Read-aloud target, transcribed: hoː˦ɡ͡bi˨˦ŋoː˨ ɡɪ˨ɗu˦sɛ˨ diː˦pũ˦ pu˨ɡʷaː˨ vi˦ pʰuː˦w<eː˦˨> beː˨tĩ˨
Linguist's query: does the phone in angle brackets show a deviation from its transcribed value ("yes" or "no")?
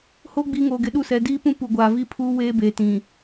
yes